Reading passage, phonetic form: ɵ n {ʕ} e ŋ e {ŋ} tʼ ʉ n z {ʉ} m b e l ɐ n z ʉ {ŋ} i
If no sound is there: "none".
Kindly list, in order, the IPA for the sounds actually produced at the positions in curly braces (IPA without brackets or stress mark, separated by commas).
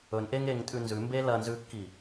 ʔ, ŋ, ʉ, kː